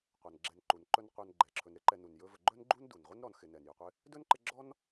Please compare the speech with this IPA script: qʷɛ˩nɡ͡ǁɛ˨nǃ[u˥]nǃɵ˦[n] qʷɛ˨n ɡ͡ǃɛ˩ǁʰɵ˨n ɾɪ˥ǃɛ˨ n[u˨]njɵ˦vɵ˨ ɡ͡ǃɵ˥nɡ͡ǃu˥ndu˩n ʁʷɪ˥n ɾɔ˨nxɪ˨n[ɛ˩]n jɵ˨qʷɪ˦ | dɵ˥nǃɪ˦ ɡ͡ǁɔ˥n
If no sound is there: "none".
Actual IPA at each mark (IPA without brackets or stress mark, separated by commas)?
u˩, n, u˩, ɛ˩